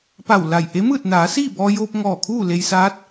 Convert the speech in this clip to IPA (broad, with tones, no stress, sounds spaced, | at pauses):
p a˧˩ w l a˧˩ j ʔ e˧˥ m ɯː˥˨ t̚ n aː˩˧ s iː˥˨ b ɔː˧ j oː˧ p̚ ŋ ɔː˧˩ kʰ uː˥˨ l e˧ j s aː˧˥ t̚